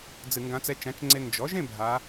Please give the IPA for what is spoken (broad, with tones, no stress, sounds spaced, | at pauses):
d͡z ɨ˧˩˧ ŋ ɡ ã˧˥ t͡s ɛ˧˥ t͡ʃ ã˩˥ t͡ʃ ŋ͡ǀ e˧ n d͡ʒ ɔ˩˥ ʒ ẽ˥˧ bʱ a˧˥